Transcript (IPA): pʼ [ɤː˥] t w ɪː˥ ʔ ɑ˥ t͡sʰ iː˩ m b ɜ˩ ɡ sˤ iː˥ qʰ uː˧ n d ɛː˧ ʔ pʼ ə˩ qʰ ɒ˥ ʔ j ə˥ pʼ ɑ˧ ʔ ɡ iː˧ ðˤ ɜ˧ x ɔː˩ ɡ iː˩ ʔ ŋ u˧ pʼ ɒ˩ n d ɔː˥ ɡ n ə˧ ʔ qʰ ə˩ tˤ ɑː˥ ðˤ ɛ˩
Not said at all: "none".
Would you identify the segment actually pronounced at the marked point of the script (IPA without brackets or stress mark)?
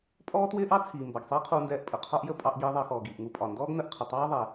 ɔː˥